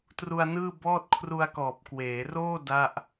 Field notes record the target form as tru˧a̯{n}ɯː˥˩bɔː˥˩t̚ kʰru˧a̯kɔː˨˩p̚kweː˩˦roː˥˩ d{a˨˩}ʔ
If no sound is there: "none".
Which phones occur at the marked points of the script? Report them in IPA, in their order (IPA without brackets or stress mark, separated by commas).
n, a˥˩